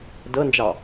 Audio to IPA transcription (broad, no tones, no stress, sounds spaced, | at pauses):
d ɤ n d͡ʒ ɑ